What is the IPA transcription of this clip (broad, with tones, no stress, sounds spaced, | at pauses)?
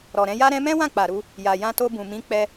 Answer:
ɾ ɔ˨ ɾ ɛ̃˧ j a˦ ɾ ɛ̃˦ m ɛ̃˦ w ã˦˨ k͡p a˨ ɾ u˧ | j a˨ j ã˧ t o˧ b ũ˨ m ĩ˨˦ k͡p ɛ˧